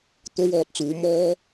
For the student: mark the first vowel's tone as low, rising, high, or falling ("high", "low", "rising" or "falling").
high